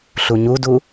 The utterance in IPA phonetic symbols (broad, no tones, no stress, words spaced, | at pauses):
ɬuɲudu